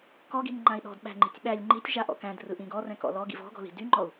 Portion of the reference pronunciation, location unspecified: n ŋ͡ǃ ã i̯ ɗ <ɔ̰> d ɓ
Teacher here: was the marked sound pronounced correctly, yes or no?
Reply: no